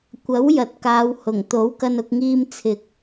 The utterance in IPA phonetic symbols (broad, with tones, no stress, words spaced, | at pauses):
kʷɐ˨˥wjɐ˨t̚kaː˨˧w hʊ˨˩ŋ t̪o˨˥wkɐ˧nʊ˧k̚ŋiː˧m t͡sʰɪ˨k̚